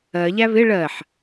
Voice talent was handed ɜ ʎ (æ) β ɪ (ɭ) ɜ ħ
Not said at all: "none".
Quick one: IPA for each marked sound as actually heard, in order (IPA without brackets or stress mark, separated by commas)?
æ, ɭ